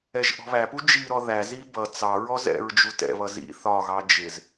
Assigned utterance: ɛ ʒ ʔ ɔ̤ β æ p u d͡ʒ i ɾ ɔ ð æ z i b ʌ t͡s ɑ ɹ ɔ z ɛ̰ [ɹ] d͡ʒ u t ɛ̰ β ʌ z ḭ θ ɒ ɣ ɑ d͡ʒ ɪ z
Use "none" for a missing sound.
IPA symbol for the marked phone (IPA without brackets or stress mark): ɹ